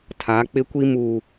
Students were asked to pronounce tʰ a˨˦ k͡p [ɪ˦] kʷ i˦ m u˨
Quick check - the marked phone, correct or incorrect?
correct